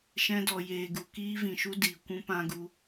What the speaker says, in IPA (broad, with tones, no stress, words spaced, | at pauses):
ʃɛ̃˧dɔ˨ jeː˨ɡu˨ kiː˧vĩ˨ʃu˧ diː˨ kʷũ˦pã˦ ɡu˧